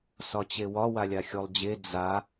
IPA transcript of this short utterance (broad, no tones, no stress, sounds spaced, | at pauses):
s ɒ t͡ɕ e w ɒ w a lʲ a xʲ o lˠ d͡ʑ e d͡z a